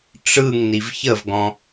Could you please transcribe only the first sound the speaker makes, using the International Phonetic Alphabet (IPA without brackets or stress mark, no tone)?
ʈ͡ʂ